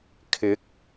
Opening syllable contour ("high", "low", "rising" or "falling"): rising